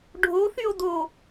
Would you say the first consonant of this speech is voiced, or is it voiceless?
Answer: voiced